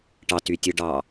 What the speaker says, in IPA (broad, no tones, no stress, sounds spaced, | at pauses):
ʈ ɑ t y tʲ ɯ ɖ ɑ